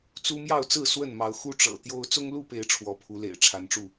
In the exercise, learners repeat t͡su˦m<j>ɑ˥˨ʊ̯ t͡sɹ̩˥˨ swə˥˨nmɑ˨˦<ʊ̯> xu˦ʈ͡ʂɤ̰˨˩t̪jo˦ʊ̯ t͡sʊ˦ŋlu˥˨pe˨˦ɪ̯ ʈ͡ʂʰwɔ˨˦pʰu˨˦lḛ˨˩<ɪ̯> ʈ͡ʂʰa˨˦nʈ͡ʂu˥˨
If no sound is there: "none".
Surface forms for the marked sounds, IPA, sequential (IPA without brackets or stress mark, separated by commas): j, ʊ̯, ɪ̯